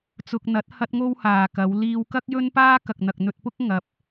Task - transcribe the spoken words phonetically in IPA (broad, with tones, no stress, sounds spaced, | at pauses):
t͡s ʊ˧ k̚ n̪ ɐ˨˥ t̚ h ɐ˥ t̚ ŋ o˥ w h aː˨ k ɐ˨˧ w l iː˧ w k ɐ˥ k̚ j ɵ˥ n p aː˥ k ɐ˨ k̚ n̪ ɐ˨ k̚ n̪ ɵ˧ t̚ p ʊ˥ k̚ ŋ ɐ˧ p̚